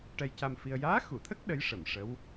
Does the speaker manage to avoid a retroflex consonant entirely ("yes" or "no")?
no